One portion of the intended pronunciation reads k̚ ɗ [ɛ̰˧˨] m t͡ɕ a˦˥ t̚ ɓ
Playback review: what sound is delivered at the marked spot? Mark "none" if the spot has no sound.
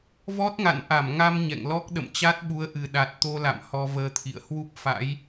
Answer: ə̰˧˨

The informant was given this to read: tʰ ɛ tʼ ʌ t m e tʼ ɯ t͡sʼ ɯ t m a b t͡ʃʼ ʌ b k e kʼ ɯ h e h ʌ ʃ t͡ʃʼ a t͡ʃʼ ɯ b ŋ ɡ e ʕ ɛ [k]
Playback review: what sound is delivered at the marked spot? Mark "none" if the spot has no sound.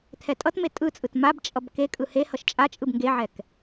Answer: k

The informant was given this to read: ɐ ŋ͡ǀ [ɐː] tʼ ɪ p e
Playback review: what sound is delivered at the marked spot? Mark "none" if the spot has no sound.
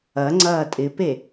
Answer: ɐː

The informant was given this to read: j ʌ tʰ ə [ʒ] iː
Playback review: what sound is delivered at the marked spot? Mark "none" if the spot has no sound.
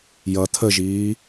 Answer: ʒ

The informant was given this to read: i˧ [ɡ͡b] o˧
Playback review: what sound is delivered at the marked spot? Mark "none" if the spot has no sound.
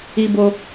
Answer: b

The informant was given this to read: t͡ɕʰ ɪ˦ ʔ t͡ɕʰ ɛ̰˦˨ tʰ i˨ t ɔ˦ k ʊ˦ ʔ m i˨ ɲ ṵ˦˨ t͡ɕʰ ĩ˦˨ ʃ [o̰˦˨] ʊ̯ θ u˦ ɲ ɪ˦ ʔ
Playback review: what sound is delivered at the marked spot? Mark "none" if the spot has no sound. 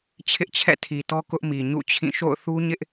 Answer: o̰˦˨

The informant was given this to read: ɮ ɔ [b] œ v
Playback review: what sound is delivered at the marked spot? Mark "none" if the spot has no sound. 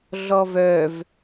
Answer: v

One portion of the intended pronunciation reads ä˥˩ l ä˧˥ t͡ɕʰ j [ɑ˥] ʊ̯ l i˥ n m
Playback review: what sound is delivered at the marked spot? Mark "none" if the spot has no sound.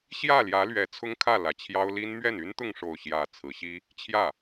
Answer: ɑ˥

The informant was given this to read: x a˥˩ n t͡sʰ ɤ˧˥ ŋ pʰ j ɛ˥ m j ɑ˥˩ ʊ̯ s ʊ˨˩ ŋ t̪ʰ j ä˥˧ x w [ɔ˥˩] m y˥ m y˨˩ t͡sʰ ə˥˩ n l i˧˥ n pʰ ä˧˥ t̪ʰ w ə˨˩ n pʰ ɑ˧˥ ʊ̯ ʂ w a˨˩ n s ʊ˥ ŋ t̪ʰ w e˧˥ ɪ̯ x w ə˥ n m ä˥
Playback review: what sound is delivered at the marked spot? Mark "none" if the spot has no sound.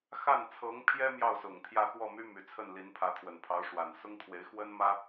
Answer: ɔ˥˩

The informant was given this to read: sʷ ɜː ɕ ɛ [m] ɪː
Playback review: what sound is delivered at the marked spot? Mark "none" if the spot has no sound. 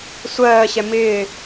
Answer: m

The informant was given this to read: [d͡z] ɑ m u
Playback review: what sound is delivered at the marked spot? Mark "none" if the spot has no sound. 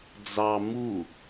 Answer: d͡z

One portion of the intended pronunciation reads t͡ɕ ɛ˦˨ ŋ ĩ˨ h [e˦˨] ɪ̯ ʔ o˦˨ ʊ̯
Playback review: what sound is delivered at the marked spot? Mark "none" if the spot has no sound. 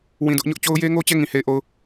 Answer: e˦˨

